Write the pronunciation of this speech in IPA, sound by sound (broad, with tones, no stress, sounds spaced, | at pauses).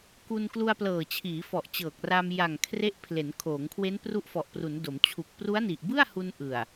k u˧ n k l u˧ a̯ p l ɤː˨˩ t͡ɕʰ iː˩˦ f ɔ˨˩ ʔ t͡ɕ ɤː˨˩ k̚ r a˧ m j a˨˩ ŋ kʰ r e˦˥ ʔ pʰ l e˩˦ n kʰ oː˩˦ ŋ kʰ w e˦˥ n p r u˦˥ ʔ f ɔ˨˩ ʔ p r u˩˦ n d o˩˦ m t͡ɕʰ u˨˩ k̚ p r u˦˥ a̯ n i˨˩ ʔ b ɯ˥˩ a̯ h u˧ n ʔ ɯ˨˩ a̯